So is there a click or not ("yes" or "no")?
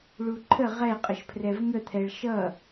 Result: yes